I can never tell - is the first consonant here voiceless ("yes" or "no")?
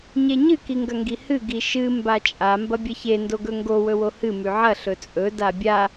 no